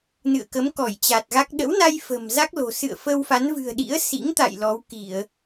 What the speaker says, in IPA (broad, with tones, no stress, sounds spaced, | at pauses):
n ɨ̰˧˨ ə̯ k ə˨˦ m k ɔ˧˩ j t͡ɕ a˨˩ t̚ ɣ a˦˥ k̚ ɗ ə̰˧˥ w n a˧ j f ə̤˨˩ m z a˦˥ k̚ l o̤˨˩ s ɨ̰˧˨ ə̯ f ə˧ w f a˨˦ n v ɨ̤˨˩ ə̯ ɗ ḭ˧˥ ə̯ s ḭ˧˥ ŋ t̪ a̰˧˨ j l ɔ˨˦ w k i˧˩˨ ə̯